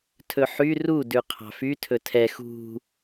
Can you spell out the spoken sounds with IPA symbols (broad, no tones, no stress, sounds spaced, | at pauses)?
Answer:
tʰ ɵ ħ y r u d ʉ qʰ ɑ̤ f y tʰ ɵ tʰ ɛ x ṳ